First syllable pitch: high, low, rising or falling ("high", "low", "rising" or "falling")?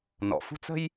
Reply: low